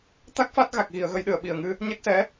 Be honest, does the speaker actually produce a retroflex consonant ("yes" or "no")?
no